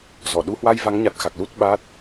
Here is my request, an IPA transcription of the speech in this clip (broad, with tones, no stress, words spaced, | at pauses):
zɔ˧˩ ɗu˨˦hwa˧jva˨˦ŋɲa˨˩t̚ xa˨˩k̚lu˦˥t̚ɓaː˦˥t̚